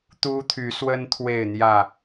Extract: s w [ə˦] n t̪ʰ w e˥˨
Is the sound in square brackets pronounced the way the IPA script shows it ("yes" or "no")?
yes